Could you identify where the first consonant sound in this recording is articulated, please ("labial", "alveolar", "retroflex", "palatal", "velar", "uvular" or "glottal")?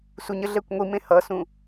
alveolar